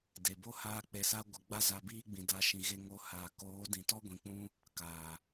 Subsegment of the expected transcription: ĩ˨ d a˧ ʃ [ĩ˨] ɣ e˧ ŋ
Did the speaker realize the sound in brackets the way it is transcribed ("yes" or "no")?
yes